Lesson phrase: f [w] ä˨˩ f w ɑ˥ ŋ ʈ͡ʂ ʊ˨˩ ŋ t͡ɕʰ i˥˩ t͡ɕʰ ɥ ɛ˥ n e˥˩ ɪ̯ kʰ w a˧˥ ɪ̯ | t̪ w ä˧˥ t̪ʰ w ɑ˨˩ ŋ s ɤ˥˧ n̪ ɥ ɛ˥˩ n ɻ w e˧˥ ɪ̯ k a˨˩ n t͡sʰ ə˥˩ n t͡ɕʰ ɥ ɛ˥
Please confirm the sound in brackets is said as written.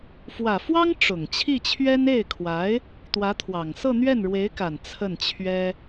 yes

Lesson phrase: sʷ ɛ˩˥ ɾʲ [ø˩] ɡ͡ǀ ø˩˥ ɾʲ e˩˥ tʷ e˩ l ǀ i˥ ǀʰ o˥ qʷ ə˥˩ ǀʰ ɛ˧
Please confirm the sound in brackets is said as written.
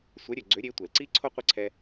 yes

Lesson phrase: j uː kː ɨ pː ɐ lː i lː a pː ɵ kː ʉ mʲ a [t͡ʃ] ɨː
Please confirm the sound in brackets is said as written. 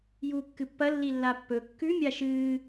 no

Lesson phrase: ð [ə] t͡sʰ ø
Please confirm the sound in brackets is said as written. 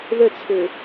yes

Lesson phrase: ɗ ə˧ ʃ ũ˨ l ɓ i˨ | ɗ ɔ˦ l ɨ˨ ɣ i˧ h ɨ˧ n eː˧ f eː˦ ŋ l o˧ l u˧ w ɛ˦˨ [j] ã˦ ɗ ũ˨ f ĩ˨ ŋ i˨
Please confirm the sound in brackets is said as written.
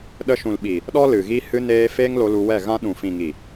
no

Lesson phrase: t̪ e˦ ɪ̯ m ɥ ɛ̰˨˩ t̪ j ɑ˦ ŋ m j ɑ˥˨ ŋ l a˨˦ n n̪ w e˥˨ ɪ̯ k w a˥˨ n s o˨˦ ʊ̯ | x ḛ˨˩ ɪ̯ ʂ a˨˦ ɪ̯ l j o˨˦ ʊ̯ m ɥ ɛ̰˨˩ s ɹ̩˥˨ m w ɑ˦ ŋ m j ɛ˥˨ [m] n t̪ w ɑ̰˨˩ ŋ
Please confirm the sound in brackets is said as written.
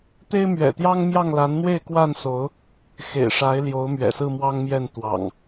no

